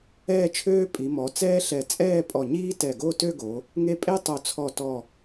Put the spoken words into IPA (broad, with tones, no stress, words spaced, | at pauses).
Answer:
ɛː˥˧t͡ʃʰøː˥ pʼi˩˧mɔ˩˧ t͡sɛː˥ɬɛ˧˩ t͡sʼɛː˥˧pʼɔ˧˩ɲiː˥ tɛ˧˩ɡo˥˧tø˥˧ɡo˩˧ | ŋe˥˧ pʼe˥ tˤo˧˩t͡sʰɔ˧˩ tɔ˧˩